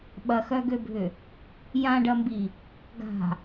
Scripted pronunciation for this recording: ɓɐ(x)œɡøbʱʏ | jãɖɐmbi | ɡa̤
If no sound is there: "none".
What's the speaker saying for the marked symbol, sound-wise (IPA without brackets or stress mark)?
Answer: x